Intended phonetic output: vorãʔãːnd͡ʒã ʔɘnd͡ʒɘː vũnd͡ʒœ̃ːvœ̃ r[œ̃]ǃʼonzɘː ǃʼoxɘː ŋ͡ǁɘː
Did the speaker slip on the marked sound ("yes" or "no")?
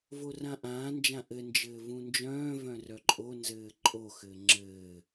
yes